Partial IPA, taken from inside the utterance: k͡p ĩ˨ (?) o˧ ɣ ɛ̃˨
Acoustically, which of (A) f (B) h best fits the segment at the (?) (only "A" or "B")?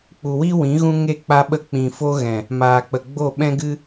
A